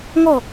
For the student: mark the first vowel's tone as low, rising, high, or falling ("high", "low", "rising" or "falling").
falling